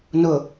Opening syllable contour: low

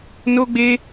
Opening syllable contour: high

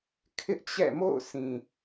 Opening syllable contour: high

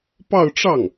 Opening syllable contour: falling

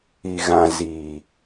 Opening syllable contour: low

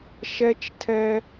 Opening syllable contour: high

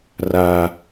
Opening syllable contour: high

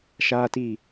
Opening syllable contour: high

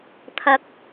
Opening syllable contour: rising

